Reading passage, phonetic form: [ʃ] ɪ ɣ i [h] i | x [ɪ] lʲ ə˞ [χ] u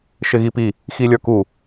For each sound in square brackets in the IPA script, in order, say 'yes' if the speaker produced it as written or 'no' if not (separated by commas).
yes, no, no, no